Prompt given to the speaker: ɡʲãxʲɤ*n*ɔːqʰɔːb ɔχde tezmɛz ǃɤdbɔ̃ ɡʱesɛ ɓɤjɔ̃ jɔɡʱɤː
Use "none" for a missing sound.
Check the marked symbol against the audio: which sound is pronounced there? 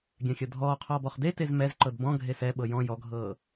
dʱ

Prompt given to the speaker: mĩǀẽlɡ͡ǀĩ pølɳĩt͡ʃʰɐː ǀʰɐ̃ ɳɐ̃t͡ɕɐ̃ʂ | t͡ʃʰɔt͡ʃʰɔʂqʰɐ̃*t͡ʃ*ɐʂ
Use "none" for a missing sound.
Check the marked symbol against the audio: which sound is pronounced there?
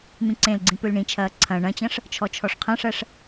ʂ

